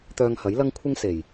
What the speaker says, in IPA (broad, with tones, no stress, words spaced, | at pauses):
t̪œː˧ŋhɐ˨˥jlɐ˥ŋ kʷʰɪ˥ŋ se˨˩j